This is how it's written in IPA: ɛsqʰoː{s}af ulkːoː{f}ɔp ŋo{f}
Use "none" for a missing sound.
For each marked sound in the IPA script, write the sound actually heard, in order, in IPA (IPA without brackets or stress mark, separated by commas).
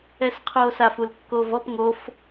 s, v, f